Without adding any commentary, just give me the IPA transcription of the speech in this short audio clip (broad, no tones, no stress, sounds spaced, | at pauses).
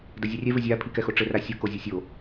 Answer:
d ɐ zʲ ɛ rʲ ɛ v ɘ zʲ a pʰ i k ɛ x o ʈ͡ʂ ɘ r a sʲ o k o zʲ ɘ sʲ o